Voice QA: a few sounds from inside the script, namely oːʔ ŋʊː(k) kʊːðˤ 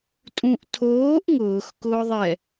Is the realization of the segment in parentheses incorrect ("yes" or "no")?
yes